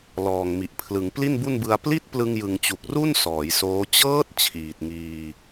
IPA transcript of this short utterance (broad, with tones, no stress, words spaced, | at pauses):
lɔː˨˩ŋmi˨˩ʔpʰlɯ˩˦ŋ pli˥˩nbu˥˩nbɯ˧a̯ pli˦˥t̚ plɯ˧ŋjɯ˨˩ŋt͡ɕu˨˩k̚ru˥˩n sɔː˩˦jsoː˦˥ t͡ɕɤː˦˥t̚ t͡ɕʰiː˨˩t̚ŋiː˧